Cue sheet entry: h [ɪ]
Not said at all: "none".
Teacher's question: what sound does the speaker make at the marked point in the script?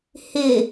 ɪ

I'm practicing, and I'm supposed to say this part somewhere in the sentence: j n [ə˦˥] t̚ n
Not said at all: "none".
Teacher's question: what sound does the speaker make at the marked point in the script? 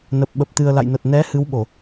ə˨˩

